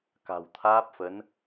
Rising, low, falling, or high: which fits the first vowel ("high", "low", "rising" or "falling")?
low